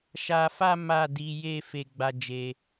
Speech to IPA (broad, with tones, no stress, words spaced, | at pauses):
ʃa˧fa˦ ma˦˨di˨˦ je˦˨ fe˧ɡ͡ba˧d͡ʒe˧